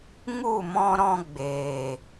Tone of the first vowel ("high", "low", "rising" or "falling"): falling